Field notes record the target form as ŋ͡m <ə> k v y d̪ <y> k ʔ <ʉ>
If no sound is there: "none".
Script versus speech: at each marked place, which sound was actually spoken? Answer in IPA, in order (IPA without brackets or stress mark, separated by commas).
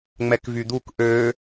ɛ, u, ø